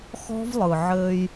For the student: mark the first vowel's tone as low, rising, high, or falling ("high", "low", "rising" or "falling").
high